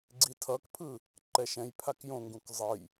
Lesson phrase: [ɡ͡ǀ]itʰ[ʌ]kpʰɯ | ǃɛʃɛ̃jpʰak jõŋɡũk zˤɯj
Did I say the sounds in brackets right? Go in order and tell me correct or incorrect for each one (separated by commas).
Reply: correct, correct